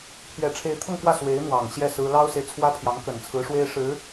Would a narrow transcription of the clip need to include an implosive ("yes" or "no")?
no